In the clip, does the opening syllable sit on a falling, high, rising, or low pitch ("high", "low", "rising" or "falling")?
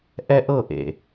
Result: high